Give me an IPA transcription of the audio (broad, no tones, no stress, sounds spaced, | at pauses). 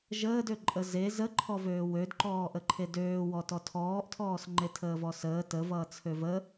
ʒ əː d ø ǃʼ ə z e z ə ǃʰ ɔ v øː w ø d ǃ ɔː ʔ ə ǃʰ e d øː w ɔ t ɔ tʰ ɔː ʔ tʰ ɔː s ŋ͡ǃ e tʰ əː v ɔ s əː t ə v ʌː t͡sʰ ø v ə